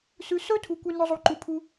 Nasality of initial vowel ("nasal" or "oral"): oral